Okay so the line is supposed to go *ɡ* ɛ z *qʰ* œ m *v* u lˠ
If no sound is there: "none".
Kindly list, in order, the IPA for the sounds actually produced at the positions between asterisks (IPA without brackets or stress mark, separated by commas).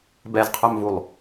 b, qʰ, v